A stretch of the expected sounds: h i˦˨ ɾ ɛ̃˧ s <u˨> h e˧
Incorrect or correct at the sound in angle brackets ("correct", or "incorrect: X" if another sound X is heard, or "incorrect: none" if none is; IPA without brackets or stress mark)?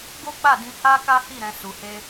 correct